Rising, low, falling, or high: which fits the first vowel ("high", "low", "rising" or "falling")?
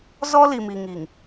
high